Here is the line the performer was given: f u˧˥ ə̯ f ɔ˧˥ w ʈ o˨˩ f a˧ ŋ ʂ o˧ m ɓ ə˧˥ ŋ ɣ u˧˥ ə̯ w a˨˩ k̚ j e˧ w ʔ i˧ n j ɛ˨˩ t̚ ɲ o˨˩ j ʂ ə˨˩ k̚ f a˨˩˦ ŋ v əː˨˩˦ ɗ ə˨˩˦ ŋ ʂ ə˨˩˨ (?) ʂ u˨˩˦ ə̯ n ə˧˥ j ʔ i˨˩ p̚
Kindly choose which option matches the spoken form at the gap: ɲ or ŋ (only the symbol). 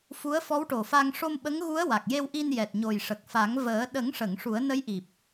ŋ